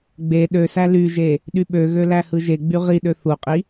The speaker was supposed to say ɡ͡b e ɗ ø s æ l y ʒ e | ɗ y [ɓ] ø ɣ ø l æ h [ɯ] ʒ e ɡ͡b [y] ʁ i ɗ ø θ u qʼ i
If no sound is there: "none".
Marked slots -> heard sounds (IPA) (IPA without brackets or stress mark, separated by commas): ɓ, ɯ, y